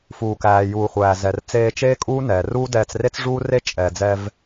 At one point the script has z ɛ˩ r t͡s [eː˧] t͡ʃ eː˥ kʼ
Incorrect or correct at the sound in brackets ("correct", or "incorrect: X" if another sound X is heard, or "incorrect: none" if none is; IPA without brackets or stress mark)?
correct